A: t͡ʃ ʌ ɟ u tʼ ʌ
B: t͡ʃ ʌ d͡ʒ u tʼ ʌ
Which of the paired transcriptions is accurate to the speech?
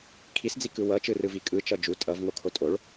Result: B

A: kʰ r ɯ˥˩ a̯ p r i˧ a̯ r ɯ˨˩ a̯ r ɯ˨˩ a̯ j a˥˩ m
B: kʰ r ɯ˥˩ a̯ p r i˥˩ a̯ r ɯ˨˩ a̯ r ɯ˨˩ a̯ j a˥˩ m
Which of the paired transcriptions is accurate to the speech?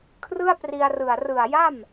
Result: A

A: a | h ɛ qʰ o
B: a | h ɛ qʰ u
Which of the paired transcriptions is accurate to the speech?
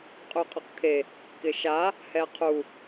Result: B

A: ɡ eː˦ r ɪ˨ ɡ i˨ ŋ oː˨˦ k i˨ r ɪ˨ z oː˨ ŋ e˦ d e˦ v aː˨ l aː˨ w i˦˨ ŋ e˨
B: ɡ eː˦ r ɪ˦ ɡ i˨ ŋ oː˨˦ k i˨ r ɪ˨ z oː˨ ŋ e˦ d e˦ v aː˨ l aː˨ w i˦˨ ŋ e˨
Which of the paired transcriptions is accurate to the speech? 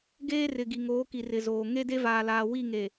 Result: A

